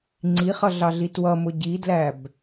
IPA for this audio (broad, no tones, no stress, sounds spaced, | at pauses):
ŋ͡ǀ i χ ʌ ɮ ɑ ɮ i t w ʌ m ʊ ɟ i d l æ b